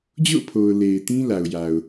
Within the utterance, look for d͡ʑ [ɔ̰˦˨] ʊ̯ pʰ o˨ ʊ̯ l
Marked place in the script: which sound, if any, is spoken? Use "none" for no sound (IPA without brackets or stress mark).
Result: o̰˦˨